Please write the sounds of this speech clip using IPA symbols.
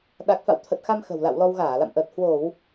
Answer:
ɗa˨˩k̚fa̰˧˨wt̪ʰə˨˩t̚xa˧m xə̤˨˩wla̰˧˨wlɔ˧w ɣaː˧˩ la̰˧˨mʔəː˨˩t̚ hwo˧˩˨w

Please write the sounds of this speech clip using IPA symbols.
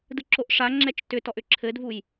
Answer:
dɯǁoʔʂaŋ͡ǁɛt͡ʃ tʏtɔʔ ʏǁʰɘdvuj

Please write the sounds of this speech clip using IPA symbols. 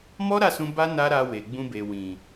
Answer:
mɔ˦ɾa˦˨sũ˧ ba˦ na˦ɾa˧we˨ ɡ͡bũ˧be˨wĩ˨

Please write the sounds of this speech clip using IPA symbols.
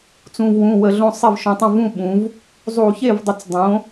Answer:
t͡sũ˩˧˩vwũ˩˧˩ wə˧˩˧ɮõ˥˧ sˤe˥˩vʃũ˩˧tˤõ˥˩ vũ˥˩ɓũ˩˧v | zˤu˧˩˧çe˥˩vdˤə˧˩˧t͡s dˤõ˩˧

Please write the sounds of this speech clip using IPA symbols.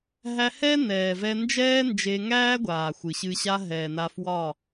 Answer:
ɦæ˧hɛ˦ nɛː˨vɛ˧ nd͡ʒɛː˦nd͡ʒe˧ŋæː˦ɡʷaː˨ xʷɨ˨ɕɨ˧ɕa˦ ɦɛː˨na˧fwɒ˦˨

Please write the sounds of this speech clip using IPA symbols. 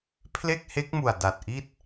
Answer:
pʰle˥˩k̚he˦˥k̚mu˨˩a̯ da˨˩t̚ʔi˥˩t̚

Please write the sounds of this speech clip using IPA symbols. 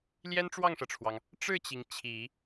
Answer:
ljɛ˥nʈ͡ʂwɑ˥˩ŋʂɤ˩ʈ͡ʂʰwɑ˩ŋ | ʈ͡ʂɻ̩˥˩t͡ɕi˩ŋ t͡ɕʰi˨˩˦

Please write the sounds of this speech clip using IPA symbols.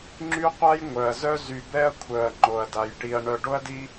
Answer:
ŋ͡ǁy˥qʷa˥jŋʷœ˩ɐ̯ zœ˥zy˨ bɛ˥ɐ̯kʷʰœ˩ɐ̯ ŋ͡ǃo˩ɐ̯da˩jʈi˨ɐ̯ ɳœ˨ɖo˥ɐ̯di˦

